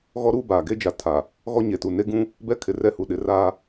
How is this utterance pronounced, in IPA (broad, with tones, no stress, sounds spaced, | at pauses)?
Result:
ɣ ɔ˦ ɾ uː˦ b aː˨ ɡ e˦ d͡ʒ a˨ tʰ a˨ | ɣ ɔ˦ ɲ e˨ t u˨ n e˦ ɡ ũ˦ | b ɛ˦ kʰ ɪ˨ r ɛ˦ h u˨ ɗ ɪ˨˦ r aː˦